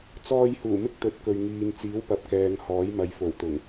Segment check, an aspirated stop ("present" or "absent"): absent